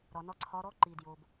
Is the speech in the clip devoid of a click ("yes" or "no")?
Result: no